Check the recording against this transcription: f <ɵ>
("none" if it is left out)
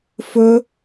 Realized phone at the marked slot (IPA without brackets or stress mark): ɵ